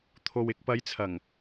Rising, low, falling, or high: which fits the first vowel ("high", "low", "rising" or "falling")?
low